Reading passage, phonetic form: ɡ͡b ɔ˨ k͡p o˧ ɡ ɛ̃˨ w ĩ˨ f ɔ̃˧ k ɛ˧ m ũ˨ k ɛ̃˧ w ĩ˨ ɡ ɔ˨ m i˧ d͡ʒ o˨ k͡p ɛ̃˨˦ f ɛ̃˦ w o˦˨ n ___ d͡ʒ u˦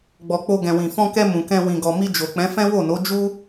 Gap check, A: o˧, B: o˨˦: B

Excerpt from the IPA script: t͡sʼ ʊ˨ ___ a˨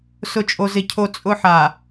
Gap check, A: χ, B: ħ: B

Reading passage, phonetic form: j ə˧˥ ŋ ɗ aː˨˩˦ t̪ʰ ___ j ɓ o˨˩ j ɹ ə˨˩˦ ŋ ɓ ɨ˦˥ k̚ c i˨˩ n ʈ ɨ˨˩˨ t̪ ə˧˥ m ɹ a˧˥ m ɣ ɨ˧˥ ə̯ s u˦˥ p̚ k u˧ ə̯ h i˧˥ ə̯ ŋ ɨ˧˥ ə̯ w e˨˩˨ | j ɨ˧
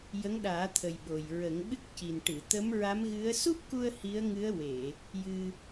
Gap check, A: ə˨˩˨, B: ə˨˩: B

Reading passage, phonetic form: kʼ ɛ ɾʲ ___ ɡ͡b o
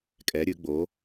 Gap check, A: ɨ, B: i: A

